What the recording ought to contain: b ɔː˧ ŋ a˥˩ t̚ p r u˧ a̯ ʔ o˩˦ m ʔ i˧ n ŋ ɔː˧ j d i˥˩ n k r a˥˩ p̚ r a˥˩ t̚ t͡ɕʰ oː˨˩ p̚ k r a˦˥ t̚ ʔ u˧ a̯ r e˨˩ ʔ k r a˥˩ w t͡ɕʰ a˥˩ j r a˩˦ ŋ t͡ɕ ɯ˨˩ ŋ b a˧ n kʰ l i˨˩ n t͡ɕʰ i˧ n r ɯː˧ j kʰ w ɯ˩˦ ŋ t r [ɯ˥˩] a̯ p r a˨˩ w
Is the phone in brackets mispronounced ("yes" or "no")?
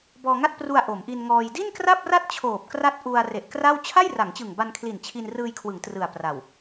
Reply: yes